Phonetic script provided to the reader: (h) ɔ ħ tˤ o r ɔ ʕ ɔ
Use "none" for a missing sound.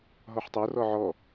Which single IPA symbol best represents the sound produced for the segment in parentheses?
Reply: ɦ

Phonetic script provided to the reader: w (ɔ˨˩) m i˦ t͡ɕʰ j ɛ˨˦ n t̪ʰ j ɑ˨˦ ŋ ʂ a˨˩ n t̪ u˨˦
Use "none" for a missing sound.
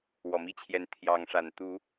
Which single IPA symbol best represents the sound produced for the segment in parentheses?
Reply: ɔ˨˩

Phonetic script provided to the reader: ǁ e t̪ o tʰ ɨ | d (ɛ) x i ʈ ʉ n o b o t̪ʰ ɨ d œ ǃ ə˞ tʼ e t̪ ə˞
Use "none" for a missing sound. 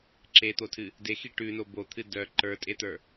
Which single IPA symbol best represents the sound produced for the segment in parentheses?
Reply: e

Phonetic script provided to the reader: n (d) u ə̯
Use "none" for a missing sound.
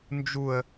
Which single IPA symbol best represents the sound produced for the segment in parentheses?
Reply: d͡ʒ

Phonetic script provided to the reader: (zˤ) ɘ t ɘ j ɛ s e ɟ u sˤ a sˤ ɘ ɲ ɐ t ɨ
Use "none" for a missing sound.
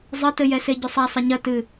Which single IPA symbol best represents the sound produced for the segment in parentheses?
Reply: zˤ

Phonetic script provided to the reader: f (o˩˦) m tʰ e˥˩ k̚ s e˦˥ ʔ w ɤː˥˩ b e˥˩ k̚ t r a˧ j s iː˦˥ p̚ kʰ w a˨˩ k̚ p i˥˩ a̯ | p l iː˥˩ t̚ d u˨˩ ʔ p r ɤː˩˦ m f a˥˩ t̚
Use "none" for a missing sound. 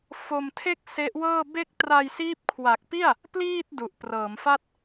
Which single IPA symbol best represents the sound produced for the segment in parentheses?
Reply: o˧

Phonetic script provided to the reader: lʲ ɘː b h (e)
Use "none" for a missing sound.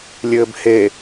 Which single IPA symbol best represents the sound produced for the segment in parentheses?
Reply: e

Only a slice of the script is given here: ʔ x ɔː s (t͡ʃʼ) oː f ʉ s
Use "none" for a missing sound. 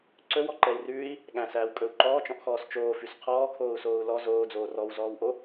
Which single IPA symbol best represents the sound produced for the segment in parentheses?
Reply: t͡ʃ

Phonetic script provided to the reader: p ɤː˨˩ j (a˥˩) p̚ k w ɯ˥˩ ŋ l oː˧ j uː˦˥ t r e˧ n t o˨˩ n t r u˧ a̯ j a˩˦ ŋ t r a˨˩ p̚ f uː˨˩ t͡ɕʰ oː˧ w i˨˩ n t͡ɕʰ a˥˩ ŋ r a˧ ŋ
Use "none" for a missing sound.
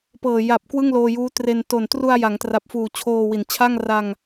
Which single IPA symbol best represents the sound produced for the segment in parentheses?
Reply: a˨˩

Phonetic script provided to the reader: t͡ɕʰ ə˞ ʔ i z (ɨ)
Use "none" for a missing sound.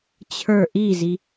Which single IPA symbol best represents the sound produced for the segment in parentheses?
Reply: i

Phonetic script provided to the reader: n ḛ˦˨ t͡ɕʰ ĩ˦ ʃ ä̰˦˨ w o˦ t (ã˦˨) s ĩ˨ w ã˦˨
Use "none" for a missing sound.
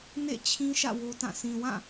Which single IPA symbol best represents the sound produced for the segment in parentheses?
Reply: ã˦˨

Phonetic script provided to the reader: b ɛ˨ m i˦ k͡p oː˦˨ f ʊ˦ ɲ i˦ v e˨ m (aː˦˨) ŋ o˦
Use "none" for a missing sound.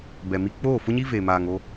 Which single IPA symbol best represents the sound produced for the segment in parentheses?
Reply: aː˨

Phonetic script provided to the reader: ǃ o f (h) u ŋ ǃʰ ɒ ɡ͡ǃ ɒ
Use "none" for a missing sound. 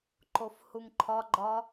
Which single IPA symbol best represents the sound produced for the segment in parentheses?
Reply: h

